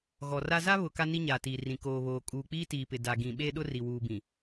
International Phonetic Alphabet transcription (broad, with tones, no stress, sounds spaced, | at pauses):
ɣ ɔ˨ r a˦ z a˦ β ʊ˨ k a˦ n i˦ ɲ a˨ t iː˨ r ĩ˨ k oː˨ β oː˨ kʼ uː˨ k͡p iː˦ t iː˨ p ɪ˨ d a˨ ɡ ĩ˨ ɓ e˦ ɗ ʊ˦ r i˨ w uː˨ b ĩ˨